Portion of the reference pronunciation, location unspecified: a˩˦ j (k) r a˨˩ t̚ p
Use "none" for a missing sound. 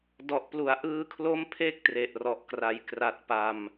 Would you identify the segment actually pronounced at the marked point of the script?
k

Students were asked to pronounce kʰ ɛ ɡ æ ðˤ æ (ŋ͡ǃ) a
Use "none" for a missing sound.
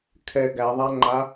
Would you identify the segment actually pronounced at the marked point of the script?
ŋ͡ǃ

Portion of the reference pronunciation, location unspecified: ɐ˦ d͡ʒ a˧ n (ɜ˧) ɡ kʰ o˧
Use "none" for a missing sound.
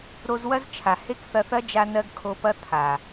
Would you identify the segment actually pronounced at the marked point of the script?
ɜ˧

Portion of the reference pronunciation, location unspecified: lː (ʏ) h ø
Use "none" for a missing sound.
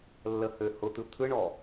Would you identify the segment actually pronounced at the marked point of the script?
ə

